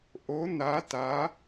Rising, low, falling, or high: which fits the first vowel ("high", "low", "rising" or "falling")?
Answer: rising